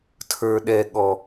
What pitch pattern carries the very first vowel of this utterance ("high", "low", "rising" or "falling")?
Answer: low